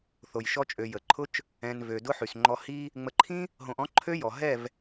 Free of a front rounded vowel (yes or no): no